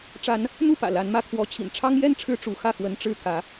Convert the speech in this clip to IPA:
ʈ͡ʂ a˨˦ n | n̪ u˥˨ p ä̰˨˩ l a˨˦ n m ä˨˦ kʰ w ɔ˨˦ t͡ɕʰ ḭ˨˩ n ʈ͡ʂʰ ɑ˦ ŋ j ɛ˥˨ n ʈ͡ʂʰ ɻ̩˦ ʈ͡ʂ u˨˦ x ä˥˨ x w ə˦ n ʈ͡ʂ ɻ̩˥˨ k ä˨˦

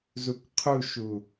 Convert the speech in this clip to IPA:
z u k qʰ u ʃ u

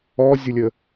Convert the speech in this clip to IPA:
ɔ zʲ ʊ lʲ ə

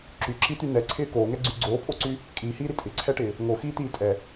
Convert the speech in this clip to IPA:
ǁ y ǁ i t̪ y n ɛ ǀʰ ɪː k oː ŋ ɛ ɡ͡ǀ y ɡ͡ǀ oː pʼ o ǀ y | kʼ iː h iː ɾ i tʼ ɪ ǀʰ ɛ ʈ ɪː | ŋ o x iː t̪ iː tʼ ɛ

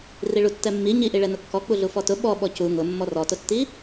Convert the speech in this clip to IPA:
r i ɭ u tː ɛ mː i ɲ i ʔ i ɭ ɛ n ʊ kː ɔ k͡p u ɮ u f ɔ t ʊ ɓ ɔ ɓ ɔ c u ŋ ʊ mː ɔ r ɔ t ʊ tː i

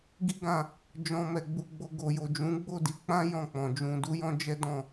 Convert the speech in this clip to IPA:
ɡ i˦ ɡ ã˧ | d͡ʒ ɔ̃˧ m ɛ˨ ɡ͡b u˧ ɡ͡b o˧ ɡ o˨ j o˨ d͡ʒ ũ˨˦ ɡ͡b o˦˨ d i˧ k͡p ã˦ j ɔ̃˦˨ k͡p ɔ̃˨ d͡ʒ ũ˧ d u˦ j ɔ̃˦ d͡ʒ ɛ˦ d ɔ̃˦˨

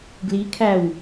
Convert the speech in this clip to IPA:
ɡ l i kʰ æ w

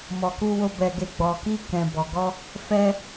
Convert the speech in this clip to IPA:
m ɔ˧ k u˦ w o˦ b ɛ˧ ɡ e˧ ɡ͡b ɔ˧ k i˦ k ɛ̃˧ b ɔ˧ ɡ ɔ˦ | f ɛ˦

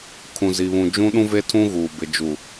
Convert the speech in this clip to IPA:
kʰ ũ˨ z i˨ β ũ˨ d͡ʒ ũ˦ ɗ ũ˦ v e˦ tʰ ũ˦ ɣ uː˨ b ɪ˨ d͡ʒ u˨

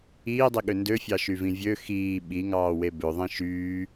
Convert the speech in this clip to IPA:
iː dˤ i ɠ ø n d ø fʲ ɑ ʃ y v ĩ vʲ ø x iː ɓ i ŋ ɑː w e b ø ðˤ ĩ ʃ yː

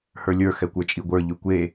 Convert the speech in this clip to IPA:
h ə˞ lʲ ə˞ x ɛ kʷ ə˞ t͡ʃʼ i ɡʷ ə˞ ʎ ʉ kʷ e

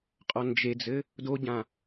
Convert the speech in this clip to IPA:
qʼ ɔ n d͡ʒ e d͡z ɘ | d o ɟ ã

